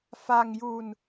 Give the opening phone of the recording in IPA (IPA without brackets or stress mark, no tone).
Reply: f